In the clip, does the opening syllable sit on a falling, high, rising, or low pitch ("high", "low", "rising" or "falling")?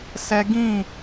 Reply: high